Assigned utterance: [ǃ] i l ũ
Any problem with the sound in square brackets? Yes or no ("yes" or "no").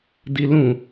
yes